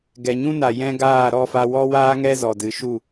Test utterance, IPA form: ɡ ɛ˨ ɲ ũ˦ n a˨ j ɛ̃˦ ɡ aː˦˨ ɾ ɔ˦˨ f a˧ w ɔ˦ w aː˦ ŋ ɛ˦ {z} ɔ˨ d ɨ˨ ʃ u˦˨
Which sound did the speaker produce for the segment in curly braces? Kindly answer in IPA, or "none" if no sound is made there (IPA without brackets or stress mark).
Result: z